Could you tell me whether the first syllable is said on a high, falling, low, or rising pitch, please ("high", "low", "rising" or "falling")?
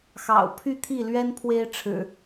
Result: low